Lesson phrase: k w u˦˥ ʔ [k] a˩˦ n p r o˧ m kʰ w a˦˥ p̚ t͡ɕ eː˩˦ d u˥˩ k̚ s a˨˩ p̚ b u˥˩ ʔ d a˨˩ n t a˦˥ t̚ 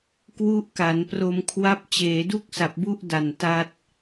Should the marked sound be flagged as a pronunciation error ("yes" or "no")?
no